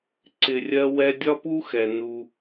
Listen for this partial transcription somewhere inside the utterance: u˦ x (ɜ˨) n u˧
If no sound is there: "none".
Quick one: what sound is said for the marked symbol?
ɛ˨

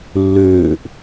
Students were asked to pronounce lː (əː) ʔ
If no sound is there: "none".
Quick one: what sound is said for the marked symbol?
øː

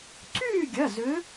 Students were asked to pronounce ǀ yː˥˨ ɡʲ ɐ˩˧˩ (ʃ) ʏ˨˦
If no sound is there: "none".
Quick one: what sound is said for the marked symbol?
z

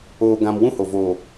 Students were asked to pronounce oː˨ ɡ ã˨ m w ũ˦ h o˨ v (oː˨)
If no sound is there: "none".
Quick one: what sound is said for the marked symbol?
oː˨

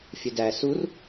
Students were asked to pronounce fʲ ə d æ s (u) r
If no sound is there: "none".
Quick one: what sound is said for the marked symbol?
u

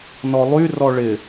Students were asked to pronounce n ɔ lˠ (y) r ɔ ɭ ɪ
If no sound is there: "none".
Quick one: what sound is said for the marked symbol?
y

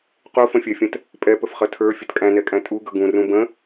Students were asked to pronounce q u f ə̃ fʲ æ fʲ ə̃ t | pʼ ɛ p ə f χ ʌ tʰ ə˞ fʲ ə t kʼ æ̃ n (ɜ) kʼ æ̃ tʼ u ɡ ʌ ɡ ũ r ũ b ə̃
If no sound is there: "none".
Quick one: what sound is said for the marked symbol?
ɛ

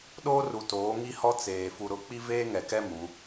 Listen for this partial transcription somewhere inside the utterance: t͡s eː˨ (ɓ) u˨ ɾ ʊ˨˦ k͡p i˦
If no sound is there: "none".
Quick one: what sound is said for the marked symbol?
f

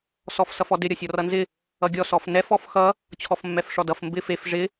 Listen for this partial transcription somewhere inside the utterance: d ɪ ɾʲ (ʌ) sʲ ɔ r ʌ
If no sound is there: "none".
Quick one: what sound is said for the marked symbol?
ʌ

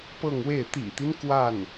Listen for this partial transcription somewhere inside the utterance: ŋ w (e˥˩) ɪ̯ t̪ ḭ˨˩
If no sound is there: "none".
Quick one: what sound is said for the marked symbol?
e˥˩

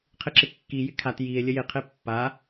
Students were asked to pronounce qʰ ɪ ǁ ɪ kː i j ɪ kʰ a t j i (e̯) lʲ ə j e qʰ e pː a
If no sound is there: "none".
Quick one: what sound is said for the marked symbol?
e̯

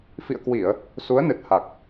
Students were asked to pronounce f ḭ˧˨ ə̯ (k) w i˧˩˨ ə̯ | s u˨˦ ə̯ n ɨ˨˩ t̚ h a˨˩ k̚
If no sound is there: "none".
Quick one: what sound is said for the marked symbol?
k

